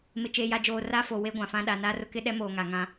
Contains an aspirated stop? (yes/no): no